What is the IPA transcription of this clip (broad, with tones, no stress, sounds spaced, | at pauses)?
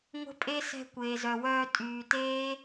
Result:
ŋʷ ə̤˦ pʼ e˦ s ɛ̤˧ kʷ eː˨ z œ˨ w œː˧ tʼ yː˨ t eː˦